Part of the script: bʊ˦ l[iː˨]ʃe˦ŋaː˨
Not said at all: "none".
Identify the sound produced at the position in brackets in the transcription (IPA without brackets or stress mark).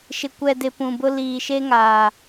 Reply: iː˨